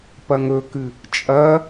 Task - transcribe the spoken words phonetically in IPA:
p ɐ ŋ ɵ k ɨ | t͡ʃʼ ɐ

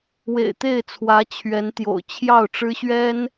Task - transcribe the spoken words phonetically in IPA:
w ḛ˨˩ ɪ̯ t̪ e˥˩ ɪ̯ t͡sʰ w ä˧˥ t͡ɕʰ ɥ ɛ˧˥ n t̪ j o̰˨˩ ʊ̯ t͡ɕʰ j ɑ˥˩ ʊ̯ ʈ͡ʂ ɻ̩˥ ɕ ɥ ɛ˥ n

